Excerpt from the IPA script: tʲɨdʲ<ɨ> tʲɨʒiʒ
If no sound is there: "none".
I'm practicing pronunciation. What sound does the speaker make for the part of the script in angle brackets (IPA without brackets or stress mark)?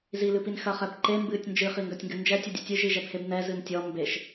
ɨ